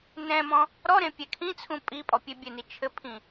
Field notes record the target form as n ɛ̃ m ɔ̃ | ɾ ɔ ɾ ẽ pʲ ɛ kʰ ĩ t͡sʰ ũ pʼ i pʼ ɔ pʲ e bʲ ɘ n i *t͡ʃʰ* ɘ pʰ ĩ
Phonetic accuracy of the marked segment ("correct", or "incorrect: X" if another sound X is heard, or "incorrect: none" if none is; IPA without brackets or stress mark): correct